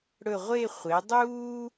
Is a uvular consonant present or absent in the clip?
present